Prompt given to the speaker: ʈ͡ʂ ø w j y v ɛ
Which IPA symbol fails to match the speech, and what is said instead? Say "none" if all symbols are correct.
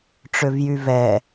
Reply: w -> v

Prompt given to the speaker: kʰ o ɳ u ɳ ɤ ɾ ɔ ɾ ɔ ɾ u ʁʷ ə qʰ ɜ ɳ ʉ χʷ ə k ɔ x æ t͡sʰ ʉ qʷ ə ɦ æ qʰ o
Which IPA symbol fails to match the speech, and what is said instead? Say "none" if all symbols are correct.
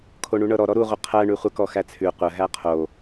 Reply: none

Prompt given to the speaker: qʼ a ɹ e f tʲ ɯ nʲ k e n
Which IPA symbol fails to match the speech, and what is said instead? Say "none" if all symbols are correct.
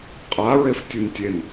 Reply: k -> tʲ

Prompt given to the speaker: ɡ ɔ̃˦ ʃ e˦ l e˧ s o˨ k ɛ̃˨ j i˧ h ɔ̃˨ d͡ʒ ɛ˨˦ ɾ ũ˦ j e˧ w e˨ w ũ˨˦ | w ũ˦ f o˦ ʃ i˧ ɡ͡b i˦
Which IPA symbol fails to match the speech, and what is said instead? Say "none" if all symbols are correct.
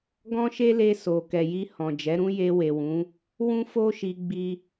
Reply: ɛ̃˨ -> ɛ˨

